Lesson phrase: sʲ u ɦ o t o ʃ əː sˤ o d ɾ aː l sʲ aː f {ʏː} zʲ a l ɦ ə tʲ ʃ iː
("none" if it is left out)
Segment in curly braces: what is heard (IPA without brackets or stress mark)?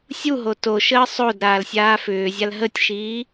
ʏː